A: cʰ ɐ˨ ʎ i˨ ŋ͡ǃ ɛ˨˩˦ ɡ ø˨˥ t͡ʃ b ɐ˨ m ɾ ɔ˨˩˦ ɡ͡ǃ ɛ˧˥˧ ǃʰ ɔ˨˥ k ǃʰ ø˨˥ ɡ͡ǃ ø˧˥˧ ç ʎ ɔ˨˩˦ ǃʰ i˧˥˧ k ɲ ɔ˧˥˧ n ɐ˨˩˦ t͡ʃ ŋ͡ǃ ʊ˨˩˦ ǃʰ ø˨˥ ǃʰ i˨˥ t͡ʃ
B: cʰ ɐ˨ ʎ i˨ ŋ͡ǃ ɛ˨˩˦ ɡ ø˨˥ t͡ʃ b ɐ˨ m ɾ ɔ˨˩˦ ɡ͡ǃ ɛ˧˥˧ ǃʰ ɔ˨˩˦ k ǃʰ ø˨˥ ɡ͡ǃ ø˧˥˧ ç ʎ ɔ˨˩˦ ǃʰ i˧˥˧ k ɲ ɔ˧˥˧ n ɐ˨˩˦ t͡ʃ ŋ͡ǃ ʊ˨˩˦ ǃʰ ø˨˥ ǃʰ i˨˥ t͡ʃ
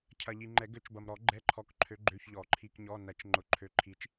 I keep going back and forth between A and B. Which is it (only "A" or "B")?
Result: A